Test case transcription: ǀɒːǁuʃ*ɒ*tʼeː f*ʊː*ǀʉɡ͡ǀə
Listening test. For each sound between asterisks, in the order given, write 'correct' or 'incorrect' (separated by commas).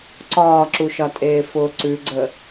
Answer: correct, correct